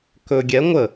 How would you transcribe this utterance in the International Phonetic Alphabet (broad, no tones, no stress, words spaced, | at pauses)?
kɵ ɡʲɛ ŋʷə